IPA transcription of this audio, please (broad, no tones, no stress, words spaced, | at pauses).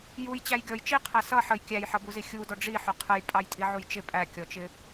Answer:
jujt͡ɕæj ɡʲɔj t͡ʃiqʰæ sʌ ħəj kʲæjħʌbuzi xʲudɔ ɖ͡ʐiħʊ qʰəjpʼɑjtʼiʕuj t͡ʃɪ pʼækʲɔt͡ʃɪ